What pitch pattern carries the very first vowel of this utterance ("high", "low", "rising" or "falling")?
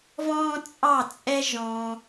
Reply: high